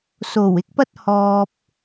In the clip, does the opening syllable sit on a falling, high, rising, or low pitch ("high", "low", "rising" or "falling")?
low